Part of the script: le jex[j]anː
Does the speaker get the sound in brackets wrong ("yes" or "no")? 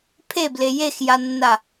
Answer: no